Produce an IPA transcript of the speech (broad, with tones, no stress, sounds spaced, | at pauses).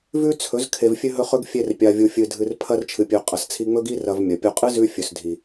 v ʉ˦ t͡sʰ ɵ˨˦ z kʰ e˨ v fʲ ʉ˧ ɦ ɵ˧ χ ɵ˧ ɡ fʲ e˧ r pʲ a˨ vʲ u˨ fʲ ɨ˨ dʱ ɨ˧ r pʰ ɐ˦ r t͡ʃʰ ɨ˨ pʲ ʉ˨ qʼ ɐ˨ s t͡sʰ i˧ ŋ͡m ɵ˦ ɡ i˦ r ɐ˨ v mʲ ɐ˨ pʲ o˦ qʼ ɨ˦ z ʉ˧ fʲ ɵ˨ s dʱ i˨